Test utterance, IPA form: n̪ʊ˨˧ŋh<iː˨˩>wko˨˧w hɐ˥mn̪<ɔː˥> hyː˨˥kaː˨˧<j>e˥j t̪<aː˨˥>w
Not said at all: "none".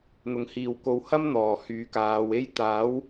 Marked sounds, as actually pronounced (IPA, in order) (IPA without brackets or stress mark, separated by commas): iː˨, ɔː˨˩, w, aː˨˥